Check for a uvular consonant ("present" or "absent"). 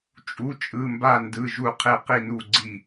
present